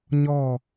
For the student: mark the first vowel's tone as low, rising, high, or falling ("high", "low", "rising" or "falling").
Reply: falling